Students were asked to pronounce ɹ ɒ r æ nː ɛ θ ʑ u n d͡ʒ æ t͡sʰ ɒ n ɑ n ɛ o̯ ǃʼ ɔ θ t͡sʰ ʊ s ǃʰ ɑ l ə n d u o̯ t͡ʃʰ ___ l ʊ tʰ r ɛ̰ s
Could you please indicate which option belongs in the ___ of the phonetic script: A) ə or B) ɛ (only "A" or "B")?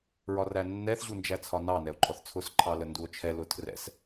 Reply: B